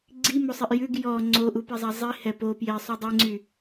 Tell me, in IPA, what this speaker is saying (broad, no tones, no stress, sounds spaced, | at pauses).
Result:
ɡ͡ǀ i m o sˤ i ʔ j ʉ ɡ j ɔ ŋ͡ǀ o ʔ u p i zˤ æ zˤ i h ɛ p o p j e sˤ y dˤ e ŋ͡ǀ y